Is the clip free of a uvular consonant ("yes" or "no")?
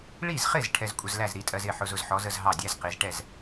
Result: no